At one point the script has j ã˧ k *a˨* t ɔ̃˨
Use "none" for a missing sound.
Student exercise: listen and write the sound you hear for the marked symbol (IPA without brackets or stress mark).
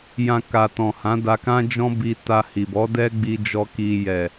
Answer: a˨